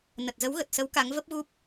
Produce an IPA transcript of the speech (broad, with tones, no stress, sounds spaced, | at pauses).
n ə˨˩ t̚ z ə˨˦ w ɣ ə˨˩ t̚ s ə˨˦ w k a˨˦ ŋ v ə˦˥ p̚ ɣ u˦˥ p̚